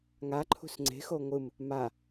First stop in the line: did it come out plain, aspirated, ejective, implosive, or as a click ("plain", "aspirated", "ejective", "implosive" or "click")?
click